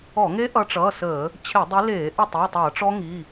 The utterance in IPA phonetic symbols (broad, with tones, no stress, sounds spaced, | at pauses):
ɔ˧˩˧ ŋ e˦˥ ʔ ʌ˨˦ ʈ͡ʂ ʌː˩˧˩ s əː˧˩˧ | t͡ɕʰ e˧˩˧ dˤ i˨˦ l eː˧˩˧ ʔ ə˥˩ tˤ i˩˧˩ tˤ ʌː˧˩˧ ʈ͡ʂ ɔ˦˥ ŋ i˩˧˩